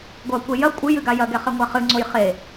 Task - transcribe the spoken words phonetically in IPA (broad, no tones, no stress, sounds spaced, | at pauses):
ɡʷ ɐ kʷ e j ɐ kʷʼ ɨ j ɨ ɡ a j ɐ ɡ ɛ χ ɛ ŋʷ a χ ɨ ŋ͡ǀ o j χ e